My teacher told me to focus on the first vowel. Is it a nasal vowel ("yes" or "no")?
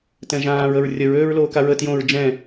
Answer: yes